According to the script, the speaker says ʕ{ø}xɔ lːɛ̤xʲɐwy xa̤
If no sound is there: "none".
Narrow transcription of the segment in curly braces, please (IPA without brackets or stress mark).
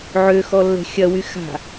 ø